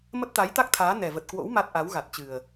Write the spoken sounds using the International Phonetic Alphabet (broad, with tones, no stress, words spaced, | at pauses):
mə˦˥t̚t̪a˨˦jt̪a˦˥k̚t̪ʰaː˨˦ nɛ˨˩və˨˩t̚kwo̰˧˥w ma˦˥t̚ ʔa˨˦wɣa˨˩t̚t͡ɕɨ˨˩ə̯